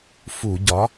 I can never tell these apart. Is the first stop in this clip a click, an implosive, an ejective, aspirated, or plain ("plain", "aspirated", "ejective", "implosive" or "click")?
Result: plain